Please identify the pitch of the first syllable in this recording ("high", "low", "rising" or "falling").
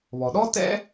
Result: low